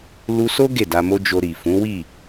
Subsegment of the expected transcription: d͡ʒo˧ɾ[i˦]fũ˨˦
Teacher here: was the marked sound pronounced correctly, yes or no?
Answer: no